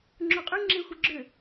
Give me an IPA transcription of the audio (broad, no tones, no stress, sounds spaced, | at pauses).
ŋ͡ǁ o qʼ y ŋ͡ǁ e xʷ ɪ ɡ͡ǁ ʏ